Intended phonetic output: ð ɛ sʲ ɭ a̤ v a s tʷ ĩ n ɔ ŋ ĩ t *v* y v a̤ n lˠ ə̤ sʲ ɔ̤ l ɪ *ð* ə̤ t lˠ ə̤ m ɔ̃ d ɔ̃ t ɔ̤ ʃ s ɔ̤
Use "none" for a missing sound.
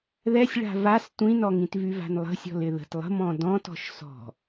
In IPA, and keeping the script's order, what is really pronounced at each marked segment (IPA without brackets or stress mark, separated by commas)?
v, ð